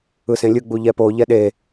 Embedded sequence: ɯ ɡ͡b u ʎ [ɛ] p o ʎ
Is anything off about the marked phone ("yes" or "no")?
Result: no